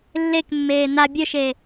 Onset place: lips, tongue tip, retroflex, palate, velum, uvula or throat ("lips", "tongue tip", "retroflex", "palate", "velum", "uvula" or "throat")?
tongue tip